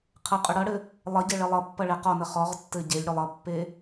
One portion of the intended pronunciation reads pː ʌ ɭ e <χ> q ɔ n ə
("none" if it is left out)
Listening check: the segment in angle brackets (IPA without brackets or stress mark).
none